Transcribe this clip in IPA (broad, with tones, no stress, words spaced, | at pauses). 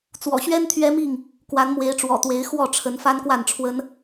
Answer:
t͡swɔ̰˨˩ɕɥɛ˦n t̪ʰɥɛ˦mi˥˨ŋ | kwa˨˦nmwe˨˦ɪ̯ʈ͡ʂwɔ̰˨˩t̪we˨˦ɪ̯ xwɔ˥˨ʈ͡ʂʰə˨˦n fa˦nkwa˥˨nʈ͡ʂʰwə˦n